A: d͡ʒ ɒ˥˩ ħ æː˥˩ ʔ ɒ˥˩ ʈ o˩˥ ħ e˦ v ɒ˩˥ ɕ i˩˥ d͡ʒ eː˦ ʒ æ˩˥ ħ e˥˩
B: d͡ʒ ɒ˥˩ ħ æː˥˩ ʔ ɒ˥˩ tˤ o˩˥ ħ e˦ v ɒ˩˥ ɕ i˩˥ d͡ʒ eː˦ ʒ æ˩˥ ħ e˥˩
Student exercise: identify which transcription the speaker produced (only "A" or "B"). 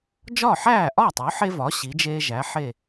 B